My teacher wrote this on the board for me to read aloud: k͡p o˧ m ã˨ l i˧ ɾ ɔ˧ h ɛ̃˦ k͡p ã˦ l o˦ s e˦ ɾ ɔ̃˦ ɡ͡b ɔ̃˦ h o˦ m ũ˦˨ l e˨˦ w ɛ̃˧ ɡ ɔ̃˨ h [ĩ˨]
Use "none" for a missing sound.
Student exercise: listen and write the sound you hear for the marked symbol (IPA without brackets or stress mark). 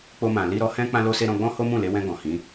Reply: ĩ˨˦